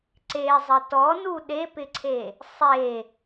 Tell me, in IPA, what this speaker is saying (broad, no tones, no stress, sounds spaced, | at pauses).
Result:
ǀ e zˤ ɘ t ɔ n u ɗ e p ɪ ǀʰ e | sˤ e